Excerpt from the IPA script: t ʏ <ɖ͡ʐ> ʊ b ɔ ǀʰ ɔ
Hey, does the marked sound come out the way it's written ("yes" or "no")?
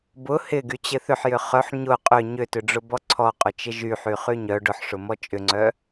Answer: yes